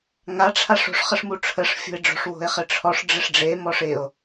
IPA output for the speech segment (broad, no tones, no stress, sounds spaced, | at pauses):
ŋ a ʈ͡ʂʰ a ʂ o̤ ʂ χ ə ʂ m u ʈ͡ʂʰ ə ʂ fʲ o̤ e̯ ɖ͡ʐ o̤ ʂ w o̤ e̯ χ ɪ ʈ͡ʂʰ ɔ ʂ ɖ͡ʐ ɪ ʂ ɖ͡ʐ e m ɔ ʂ ɪ o̯